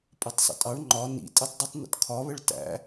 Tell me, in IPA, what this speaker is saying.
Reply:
pʼʌtˤsˤə̰tʼɑɳ ŋ͡ǃɒ nḭ tʼɛtˤdˤʊtˤ nə̰tkʰɒβəɭ tæ̰

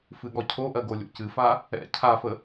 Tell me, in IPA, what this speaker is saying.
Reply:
fɨɠɔcʰoʔɜ ɡolʲo̰cɨfa | ɛ̰ cʰafə

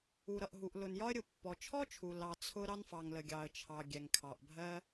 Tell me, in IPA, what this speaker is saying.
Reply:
u˩ɾʌ˩ʔɦu˩ʔ lʊ˩njɒ˥ə̯ɾʲʊ˩ pːɔ˩t͡ʃʰɔ˥t͡ʃʰu˩ lɑ˩ t͡sʰʊ˥ ɾɑ˥nfɑ˩ŋlə˩ ɡʲɑ˩ə̯t͡ʃʰɑ˩ ɡʲɛ˩ŋkʰɑ˩ʔbʱɜ˥

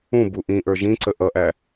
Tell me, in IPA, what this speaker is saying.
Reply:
ũbu ʔĩʔə˞ ʒĩǀə ʔʌʔæ

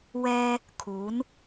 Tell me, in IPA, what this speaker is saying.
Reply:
wɛː˥ | kʰuː˨˥n

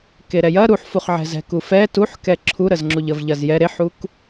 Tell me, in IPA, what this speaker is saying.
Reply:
keɾɛjɐ ɾuħfuχʕɛ̤zɛ̤ kufɛ tuħkɛ ǁʰuɾəzŋ͡ǁuʎ əvʎɐzjɛ ɾeħuk

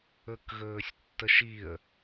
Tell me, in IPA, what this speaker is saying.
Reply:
ɵkɣɵːsʲtːəʃiə̯

